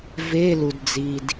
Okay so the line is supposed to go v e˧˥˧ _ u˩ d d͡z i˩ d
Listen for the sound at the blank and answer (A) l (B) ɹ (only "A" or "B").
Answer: A